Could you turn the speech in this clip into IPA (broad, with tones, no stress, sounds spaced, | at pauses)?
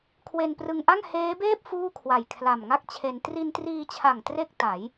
kʰ w e˧ n p r ɯ˧ ŋ ʔ a˥˩ ŋ h eː˦˥ b eː˥˩ p̚ f uː˥˩ kʰ w a˨˩ j kʰ l a˨˩ m ŋ a˥˩ k̚ t͡ɕʰ e˧ n t r i˧ n t r iː˧ t͡ɕʰ a˨˩ ŋ t r e˥˩ k̚ t a˩˦ j